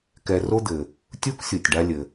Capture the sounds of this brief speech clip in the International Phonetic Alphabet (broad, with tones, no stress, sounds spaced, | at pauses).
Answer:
k ɛ˧ r o˥ d̪ ɘ˩ | tʲ u˥ k sʲ u˩ tʲ ɖ a˧ lʲ ɘ˩